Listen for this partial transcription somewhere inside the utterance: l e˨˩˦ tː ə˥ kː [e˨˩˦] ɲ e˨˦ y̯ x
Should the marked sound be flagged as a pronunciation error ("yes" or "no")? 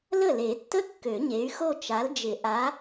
yes